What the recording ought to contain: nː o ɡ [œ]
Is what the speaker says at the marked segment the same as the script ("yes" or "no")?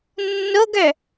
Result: yes